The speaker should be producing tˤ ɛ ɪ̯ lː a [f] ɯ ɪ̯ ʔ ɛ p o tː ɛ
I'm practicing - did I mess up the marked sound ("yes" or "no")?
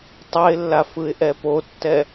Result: no